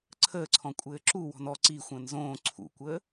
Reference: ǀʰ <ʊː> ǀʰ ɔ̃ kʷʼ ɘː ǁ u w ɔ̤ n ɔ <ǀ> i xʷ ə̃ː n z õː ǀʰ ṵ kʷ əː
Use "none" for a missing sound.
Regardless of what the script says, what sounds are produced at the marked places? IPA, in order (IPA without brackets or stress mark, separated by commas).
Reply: əː, ǀ